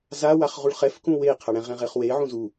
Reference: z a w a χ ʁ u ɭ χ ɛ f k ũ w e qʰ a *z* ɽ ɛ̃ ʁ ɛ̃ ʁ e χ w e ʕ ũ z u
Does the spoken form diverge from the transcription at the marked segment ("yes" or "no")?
yes